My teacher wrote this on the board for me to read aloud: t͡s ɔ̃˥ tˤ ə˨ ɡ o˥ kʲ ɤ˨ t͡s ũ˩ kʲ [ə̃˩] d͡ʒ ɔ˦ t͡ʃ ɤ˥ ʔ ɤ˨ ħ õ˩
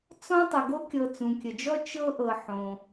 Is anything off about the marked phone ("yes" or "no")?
yes